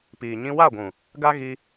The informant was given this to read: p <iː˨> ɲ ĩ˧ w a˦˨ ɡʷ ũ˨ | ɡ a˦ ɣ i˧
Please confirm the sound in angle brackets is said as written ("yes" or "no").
yes